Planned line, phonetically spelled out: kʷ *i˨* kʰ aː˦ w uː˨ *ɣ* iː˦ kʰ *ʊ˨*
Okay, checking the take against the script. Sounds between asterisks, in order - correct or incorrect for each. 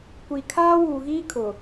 correct, correct, correct

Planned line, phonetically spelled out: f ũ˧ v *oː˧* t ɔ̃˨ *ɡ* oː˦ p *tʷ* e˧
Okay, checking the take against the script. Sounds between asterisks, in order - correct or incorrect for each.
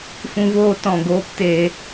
correct, correct, incorrect: t

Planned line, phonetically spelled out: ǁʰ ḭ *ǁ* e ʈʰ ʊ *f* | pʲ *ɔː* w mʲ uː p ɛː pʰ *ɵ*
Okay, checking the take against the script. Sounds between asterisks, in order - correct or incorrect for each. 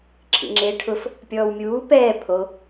incorrect: ŋ͡ǁ, correct, correct, incorrect: o

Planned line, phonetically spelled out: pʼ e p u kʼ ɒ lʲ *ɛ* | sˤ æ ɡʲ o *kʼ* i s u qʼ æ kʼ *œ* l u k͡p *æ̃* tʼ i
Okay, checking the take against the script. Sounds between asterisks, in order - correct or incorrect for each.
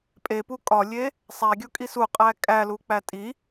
incorrect: e, correct, incorrect: æ, incorrect: æ

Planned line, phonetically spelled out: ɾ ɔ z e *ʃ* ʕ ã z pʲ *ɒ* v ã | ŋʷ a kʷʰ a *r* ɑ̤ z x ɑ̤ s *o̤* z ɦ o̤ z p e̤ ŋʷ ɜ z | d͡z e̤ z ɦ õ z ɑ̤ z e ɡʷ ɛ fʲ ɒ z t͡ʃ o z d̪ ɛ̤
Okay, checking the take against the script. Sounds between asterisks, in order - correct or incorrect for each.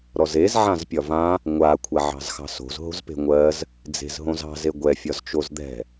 incorrect: z, correct, incorrect: ʕ, correct

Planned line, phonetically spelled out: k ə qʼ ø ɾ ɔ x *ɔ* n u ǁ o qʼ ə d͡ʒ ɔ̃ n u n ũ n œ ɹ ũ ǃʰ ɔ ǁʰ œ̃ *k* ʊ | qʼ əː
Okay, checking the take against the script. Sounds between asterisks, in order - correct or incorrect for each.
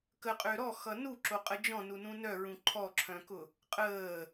incorrect: ʌ, correct

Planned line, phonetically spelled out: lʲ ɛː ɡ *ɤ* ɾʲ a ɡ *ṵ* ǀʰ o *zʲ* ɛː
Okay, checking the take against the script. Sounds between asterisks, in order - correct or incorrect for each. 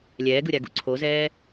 incorrect: ɯ, correct, incorrect: z

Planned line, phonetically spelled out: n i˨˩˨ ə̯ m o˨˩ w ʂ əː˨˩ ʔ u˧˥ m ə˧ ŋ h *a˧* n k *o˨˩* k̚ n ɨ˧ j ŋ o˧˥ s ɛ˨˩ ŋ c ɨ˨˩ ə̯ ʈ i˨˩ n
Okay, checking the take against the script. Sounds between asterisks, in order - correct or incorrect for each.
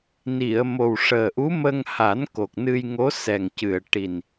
incorrect: a˨˩˦, correct

